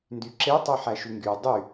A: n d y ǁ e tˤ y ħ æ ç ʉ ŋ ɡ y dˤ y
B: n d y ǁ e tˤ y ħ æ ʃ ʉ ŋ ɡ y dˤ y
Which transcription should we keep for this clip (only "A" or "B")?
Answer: B